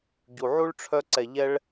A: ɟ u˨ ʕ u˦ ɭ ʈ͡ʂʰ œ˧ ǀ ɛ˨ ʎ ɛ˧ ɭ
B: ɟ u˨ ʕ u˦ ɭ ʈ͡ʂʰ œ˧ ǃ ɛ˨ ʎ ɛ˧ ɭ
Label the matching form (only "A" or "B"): A